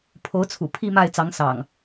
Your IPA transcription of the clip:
pʰo˨˦ʊ̯t͡sʰṵ˨˩ pʰi˥˨ma˥˨ɪ̯ t͡sɑ˨˦ŋsɑ̰˨˩ŋ

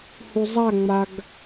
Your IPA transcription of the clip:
huzˤaŋ͡maɡ

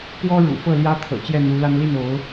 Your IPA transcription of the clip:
pwɔ˥ɻṵ˨˩ fɤ˥˩ljä˥t̪ʰɤ̰˨˩ t͡ɕjɛ˥˩n̪u˧˥la˥n li˥˩no˧˥ʊ̯

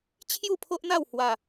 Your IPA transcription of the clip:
t͡ɕʰju˥˧pʰo˦ʔn̪a˥˧w hwa˥˧

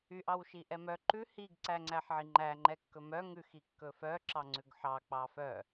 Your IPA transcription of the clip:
yʔ ɑwʃiʔɛmœ ǃʉ hiɡ ǀæŋ͡ǀæħʕiŋ͡ǃæ ŋ͡ǃɛkːɵmœ ŋʉx ikːɵfœ ǁɑŋ͡ǀʉɡħɑ k͡pɑfœ

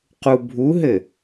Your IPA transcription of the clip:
qubʱuɦɘ

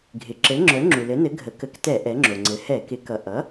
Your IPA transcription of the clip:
ɡʱɪ˩ ǁɘ˩˥ŋ͡ǁœ˩˥ ŋ͡ǁu˩lɘ˩˥nɘ˩˥ ɡʱə˩˥kə˩˥ktɛ˧˩˧ ʔɛ˩˥ŋ͡ǁo˩ŋ͡ǀɘ˩˥ hɛ˧˩˧ kɪ˩˥kʌ˩ ʔʌ˩˥

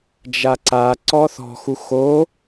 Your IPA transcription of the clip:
d͡ʒaǀa ǀɔθɔ̤xu xo

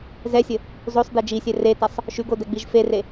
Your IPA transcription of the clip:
zɛsʲə | zosˤde d͡ʒisʲɛ retɐsˤ | ʃʉɡodɛɡ͡biʒ fere

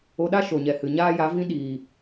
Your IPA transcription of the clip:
o˧ɗa˦ ʃo˨ɲɛ˨hɨ˨ ɲaː˦ja˨˦vĩ˦ ɗiː˨

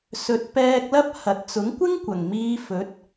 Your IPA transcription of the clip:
sɵ˨˥t̚pɛː˧k̚lɐ˥p̚ hɐ˧t̚ t͡sʊ˨˥ŋkʷɪ˥ŋ kʷɐ˨˩ŋmiː˧fɵ˨˥t̚

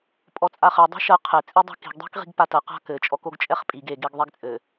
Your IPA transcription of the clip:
pʼɔt͡sʼaχɘ dˤa̤ʃɐ qʰɘ t͡sʼidˤa̤ki̤ɡ dˤi̤kʁi̤ɡpatɐ qa̤kɘ t͡ʃʼɔkoɡt͡ʃʼɛχpʼiɡ e ɡeɡðˤɛɡt͡sʼɘ

